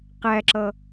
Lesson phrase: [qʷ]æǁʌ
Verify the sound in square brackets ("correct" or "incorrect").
incorrect